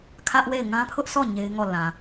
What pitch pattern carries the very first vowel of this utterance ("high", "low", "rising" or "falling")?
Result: high